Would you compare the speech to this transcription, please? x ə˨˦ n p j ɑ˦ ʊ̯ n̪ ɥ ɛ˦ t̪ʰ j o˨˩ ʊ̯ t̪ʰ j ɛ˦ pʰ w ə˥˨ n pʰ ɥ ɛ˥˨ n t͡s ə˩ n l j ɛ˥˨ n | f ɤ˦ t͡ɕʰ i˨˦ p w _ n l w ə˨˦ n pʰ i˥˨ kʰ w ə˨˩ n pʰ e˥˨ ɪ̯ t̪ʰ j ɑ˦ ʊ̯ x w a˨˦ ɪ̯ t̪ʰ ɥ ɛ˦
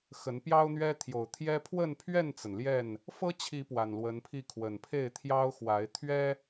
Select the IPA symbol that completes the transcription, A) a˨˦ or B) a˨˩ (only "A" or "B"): B